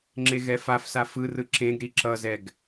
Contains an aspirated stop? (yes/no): no